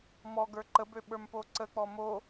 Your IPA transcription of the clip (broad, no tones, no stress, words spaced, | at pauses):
mɔ ɡə˞ǃəbø ɓə˞mpoǀək͡pɔ mo